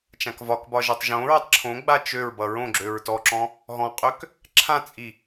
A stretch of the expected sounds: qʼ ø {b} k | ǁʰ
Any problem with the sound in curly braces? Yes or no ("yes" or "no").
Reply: yes